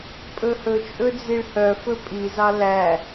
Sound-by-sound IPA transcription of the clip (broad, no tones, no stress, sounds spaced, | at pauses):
pʼ ɵ h ɵ t͡ʃʼ ɵ d͡z i ɭ h œ f ɵ pʼ i z ɑ l æ